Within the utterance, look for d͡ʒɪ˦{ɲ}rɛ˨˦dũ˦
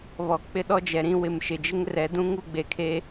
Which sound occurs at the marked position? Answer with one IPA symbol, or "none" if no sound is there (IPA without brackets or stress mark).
ŋ